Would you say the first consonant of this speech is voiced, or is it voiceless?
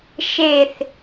voiceless